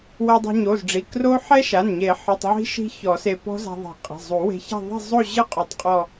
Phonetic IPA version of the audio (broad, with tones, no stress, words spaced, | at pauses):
wɛ˧dˤo̤˧ɲo˩˧˩zɖ͡ʐi˩˧˩ kro˦˥ ħɛ˦˥ʃa˩˧˩nɲe˨˩˦ ħɨ˩˧˩tˤʕi̤˦˥ ʃi̤˦˥çɔ˨˩˦se˧ pɔ̤˦˥za̤˧ðˤi̤˨˩˦ qʼe̤˩˧˩zˤu˨˩˦ we̤˧ça̤˥˧ ðˤe̤˥˧zˤo˥˧ʑɨ˦˥ qʼo˧tˤqʼɔ˥˧